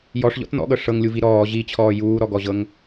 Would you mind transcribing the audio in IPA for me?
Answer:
jɔʂʎɔ̰t n̪ɔ̰ɠɤ ʂɤŋlʲuvi ɾɔː ʑit͡ɕʰɔː juːɾɔɡɔʑɤŋ

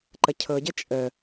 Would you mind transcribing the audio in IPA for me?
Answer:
ǃəcʰɤɟə t͡ʃʼə

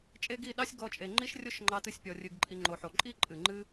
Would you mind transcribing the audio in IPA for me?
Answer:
t͡ʃʼe˦ɡi˦˨ ɗɑ˦sʲɡɔ˧t͡ʃʼe˨ ŋ͡ǃi˦ʃrʲo˦ʃŋ͡ǃɑ˧tɨ˧sʲ pʲɔ˨rʲɨ˨ɡǃʼi˨ ŋ͡ǃo˨ħo˨ǃʼi˦ ǃʼɨ˨ŋ͡ǃɨ˦

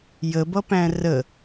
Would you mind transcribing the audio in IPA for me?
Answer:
jəbʌpæ̃ rə

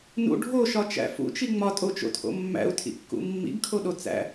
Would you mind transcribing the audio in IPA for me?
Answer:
nṵ ɖʱoʃɒt͡ʃæ̰ fṵt͡ʃi ŋ͡mɒtʼot͡ʃo̰tʰo̰ mːæ̰u̯tʰḭkːṵ mːḭɡkʰoɗo t͡sæ̰

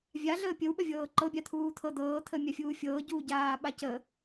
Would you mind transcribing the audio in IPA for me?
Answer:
vʲaɮəː pʲəwɓəvʲɤː ǃɤbʲa t̪ʰuːt̪ʰɤ d̪ɤːt̪ʰəːmʲafʲuː fʲɤːɟuː ɟaːɓacə

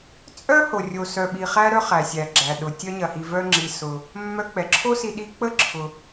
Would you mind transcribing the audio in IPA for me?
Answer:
t͡sʼœ˥ho˩ rʲo˩sœ˩ ɓi˩χæ˧ɾœ˧ χæ˩sʲæ˩ɡ͡ǁæ˩ɗʊ˩ tʲœ˧ɲɐ˩hi˩vœ˧ ŋ͡ǁi˩ sʊ˩ | mːœ˧k͡pɛ˩ǁʰo˥si˧ ɗi˧ k͡pə˥ ǁʰʊ˩

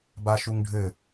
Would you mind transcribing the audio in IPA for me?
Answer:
baʃuŋɖʱɘ

